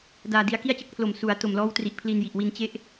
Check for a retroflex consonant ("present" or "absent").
absent